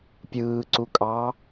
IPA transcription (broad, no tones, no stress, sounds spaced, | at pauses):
pʲ ɯː ǀ u kʼ ɑː